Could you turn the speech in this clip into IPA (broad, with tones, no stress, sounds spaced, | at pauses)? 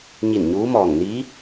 ɲ i˧˩ n ɲ uː˧˥ m ɔː˧˩ ŋ n i˧˥